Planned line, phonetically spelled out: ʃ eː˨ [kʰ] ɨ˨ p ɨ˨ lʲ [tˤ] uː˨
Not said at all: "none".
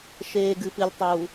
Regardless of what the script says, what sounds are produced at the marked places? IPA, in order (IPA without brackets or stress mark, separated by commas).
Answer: ɡ, tˤ